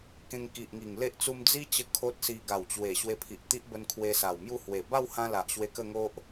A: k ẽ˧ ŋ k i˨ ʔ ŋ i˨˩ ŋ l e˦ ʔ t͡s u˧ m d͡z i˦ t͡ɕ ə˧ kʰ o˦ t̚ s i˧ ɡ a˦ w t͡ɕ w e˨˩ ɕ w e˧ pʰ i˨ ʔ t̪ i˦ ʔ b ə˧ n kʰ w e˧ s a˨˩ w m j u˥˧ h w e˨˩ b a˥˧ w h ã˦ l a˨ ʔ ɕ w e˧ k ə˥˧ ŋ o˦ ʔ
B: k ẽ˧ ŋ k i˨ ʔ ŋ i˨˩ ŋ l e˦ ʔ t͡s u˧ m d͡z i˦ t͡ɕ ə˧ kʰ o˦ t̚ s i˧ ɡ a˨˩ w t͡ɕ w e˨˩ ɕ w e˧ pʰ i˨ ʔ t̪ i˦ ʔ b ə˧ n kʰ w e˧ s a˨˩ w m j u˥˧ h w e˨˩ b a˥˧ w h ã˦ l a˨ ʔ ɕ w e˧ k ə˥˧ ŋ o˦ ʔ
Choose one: B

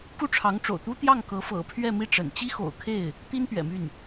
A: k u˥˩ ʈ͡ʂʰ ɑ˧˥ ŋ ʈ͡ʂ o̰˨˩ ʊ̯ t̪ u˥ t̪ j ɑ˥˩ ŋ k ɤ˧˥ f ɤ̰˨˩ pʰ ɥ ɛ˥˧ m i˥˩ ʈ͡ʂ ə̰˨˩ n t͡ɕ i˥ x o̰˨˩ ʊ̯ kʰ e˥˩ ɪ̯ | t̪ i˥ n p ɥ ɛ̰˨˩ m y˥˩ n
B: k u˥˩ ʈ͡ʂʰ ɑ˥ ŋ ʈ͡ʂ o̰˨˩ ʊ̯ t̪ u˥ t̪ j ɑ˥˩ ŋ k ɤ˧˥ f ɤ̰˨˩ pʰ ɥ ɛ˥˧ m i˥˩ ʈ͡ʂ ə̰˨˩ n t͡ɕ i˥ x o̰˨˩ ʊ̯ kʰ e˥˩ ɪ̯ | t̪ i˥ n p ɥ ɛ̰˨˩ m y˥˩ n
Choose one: A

